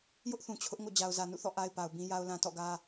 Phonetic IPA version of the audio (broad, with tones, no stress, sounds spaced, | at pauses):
j ʊ˦ ʔ θ ũ˨ t͡ɕʰ ʊ˦ ʔ ŋ o̰˦˨ d͡ʑ a˨ ʊ̯ z ä˨ n ṵ˦˨ θ ɔ̰˦˨ ʔ a˦ ɪ̯ p a˨ ʊ̯ b ĩ˦ j a˦ ʊ̯ l ã˦ t ɔ̰˦˨ ɡ ä˦